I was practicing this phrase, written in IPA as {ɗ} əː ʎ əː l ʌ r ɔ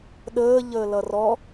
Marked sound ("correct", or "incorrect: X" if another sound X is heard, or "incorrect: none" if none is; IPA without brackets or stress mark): correct